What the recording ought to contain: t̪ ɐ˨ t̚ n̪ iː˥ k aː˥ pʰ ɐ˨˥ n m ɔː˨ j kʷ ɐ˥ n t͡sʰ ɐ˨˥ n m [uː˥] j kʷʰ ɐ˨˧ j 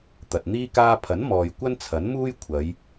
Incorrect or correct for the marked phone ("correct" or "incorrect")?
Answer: correct